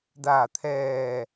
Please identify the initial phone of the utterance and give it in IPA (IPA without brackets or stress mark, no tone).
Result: d